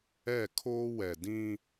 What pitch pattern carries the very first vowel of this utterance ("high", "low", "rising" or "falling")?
falling